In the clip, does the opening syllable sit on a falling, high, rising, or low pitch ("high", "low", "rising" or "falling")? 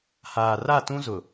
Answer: low